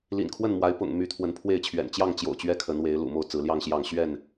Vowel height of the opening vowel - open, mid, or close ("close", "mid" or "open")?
close